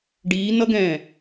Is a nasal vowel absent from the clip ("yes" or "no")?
no